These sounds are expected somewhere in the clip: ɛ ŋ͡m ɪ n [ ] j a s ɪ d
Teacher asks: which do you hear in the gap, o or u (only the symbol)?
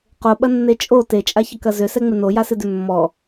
o